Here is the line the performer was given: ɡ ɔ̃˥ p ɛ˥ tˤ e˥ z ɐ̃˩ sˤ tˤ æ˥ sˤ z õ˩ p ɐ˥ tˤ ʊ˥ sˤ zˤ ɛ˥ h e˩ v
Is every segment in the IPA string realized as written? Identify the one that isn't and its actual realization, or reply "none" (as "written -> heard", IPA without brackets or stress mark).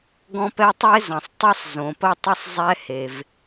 æ˥ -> ɐ˥